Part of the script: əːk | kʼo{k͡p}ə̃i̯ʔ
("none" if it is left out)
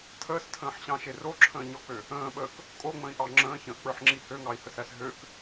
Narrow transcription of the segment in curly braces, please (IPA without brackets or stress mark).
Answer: ŋ͡m